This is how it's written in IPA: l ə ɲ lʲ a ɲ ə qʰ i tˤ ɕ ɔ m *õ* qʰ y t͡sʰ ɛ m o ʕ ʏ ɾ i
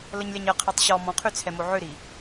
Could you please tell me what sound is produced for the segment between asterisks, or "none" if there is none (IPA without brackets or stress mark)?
ɔ̃